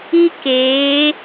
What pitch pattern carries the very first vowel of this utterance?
high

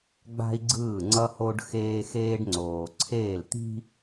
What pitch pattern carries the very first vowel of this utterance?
high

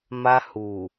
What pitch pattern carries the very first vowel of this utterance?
high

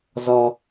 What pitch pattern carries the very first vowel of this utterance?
low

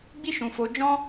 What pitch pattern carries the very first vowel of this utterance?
high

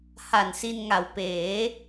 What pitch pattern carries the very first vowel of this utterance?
low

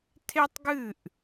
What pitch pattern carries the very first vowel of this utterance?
high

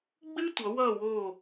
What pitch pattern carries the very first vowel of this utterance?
high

